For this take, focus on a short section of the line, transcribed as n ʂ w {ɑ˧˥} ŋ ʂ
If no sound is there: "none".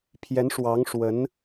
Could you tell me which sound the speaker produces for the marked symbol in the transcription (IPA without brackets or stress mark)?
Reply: ɑ˧˥